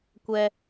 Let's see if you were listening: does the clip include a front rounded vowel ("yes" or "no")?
no